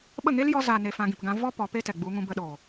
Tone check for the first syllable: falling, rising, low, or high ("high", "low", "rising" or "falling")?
falling